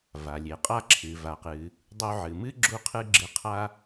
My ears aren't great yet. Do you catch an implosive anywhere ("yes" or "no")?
no